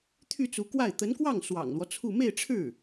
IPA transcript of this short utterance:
t̪ʰ y˥˩ t͡s u˧˥ k w a˥˩ ɪ̯ t̪ ə˧˥ n k w ɑ˥˩ ŋ s w ɑ̰˨˩ ŋ l w ɔ˦ t͡sʰ u˥˧ m e˥˧ ɪ̯ ʈ͡ʂʰ ɻ̩˥˩

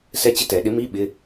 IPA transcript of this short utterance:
s ɛ˦˥ t͡ɕ ɪ˥˨ t ɛ˨˩˦ ɗ ɪ˨˥ m i˧˥˧ ɓ ɪ˧˥˧

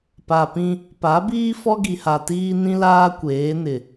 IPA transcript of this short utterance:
p a˨ p ĩ˦ | p a˨˦ b iː˦ f ɔ˦ ɡ i˨ h a˨ t iː˦ n ĩ˦ l aː˦ kʷ eː˨˦ n ɪ˨

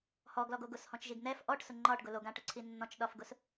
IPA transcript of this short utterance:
h ɔ ɡ l ɔ ɡ o ɡ ʊ s h ɔ̃ t͡ʃ ʒ i ɡ n̪ ɛ f ʔ ɔ ʈ s ʊ ŋ͡ǃ ɒ ʈ ɡ ʊ l o ɡ ã ʈ ʊ ǀʰ i nː ɔ̃ t͡ʃ ɗ ɒ f ɡ ʊ s

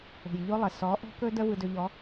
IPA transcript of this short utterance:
o̤˨ j ʎ o˦ lˠ ə˨ s ɔ˨˦ ʔ ɔ̤˦ k ɵ˦ d ə˦ v ɯ˦ d ɵ˦ ʎ ɔ˨˦

